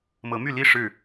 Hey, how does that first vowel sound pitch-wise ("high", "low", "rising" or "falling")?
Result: rising